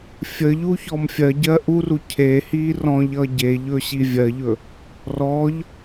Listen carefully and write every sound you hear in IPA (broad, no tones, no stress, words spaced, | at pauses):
fʲə ʎuçɔmfʲɜɟɜ ʔuru cʰehiː rɔ̃ʎʌː ɟeʎɵ ɕivʲɜʎɵ | rɔʎ